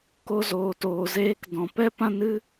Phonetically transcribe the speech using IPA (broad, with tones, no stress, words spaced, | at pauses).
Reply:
ko˧zoː˨toː˨ zeː˧k dɔ̃˨pɛ˦ pã˦nɨ˦